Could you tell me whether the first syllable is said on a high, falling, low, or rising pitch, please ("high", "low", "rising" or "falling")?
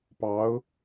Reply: rising